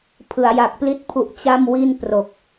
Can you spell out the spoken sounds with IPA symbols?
pʰɯ˩˦a̯ja˨˩k̚ pli˥˩t̚pʰu˦˥ʔ t͡ɕa˥˩mwi˥˩n pro˨˩k̚

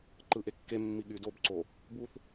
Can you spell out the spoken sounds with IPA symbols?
ǃɯʔekːemːi ɠydobǀo | buθ

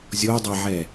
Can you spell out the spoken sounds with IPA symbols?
zʲodˤɛʕɛ

